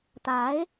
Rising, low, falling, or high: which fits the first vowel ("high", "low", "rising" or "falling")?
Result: rising